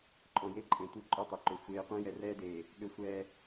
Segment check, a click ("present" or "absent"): present